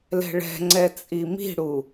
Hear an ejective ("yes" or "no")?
yes